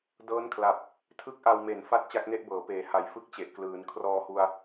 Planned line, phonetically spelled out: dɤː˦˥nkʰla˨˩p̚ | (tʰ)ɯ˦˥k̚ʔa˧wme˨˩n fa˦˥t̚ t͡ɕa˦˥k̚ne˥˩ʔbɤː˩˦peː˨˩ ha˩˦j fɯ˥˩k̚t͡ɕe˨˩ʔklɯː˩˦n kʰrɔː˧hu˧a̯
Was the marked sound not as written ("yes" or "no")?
no